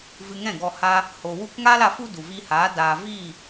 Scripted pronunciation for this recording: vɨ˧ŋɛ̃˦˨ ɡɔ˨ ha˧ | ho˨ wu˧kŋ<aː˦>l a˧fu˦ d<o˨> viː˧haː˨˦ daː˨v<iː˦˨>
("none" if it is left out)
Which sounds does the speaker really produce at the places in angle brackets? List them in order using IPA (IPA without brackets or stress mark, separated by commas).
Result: aː˦, u˨, iː˦˨